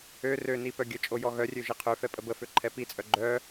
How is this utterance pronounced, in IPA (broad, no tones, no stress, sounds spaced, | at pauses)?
ø r ø n i p œ ɡʲ ə t͡ʃʼ o j ɔ ɣ œ rʲ ø ʒ i qʰ ø f ɛ pʼ ə b ə f ø ǃʰ ɛ p i t͡sʼ œ ɡ͡ǃ œ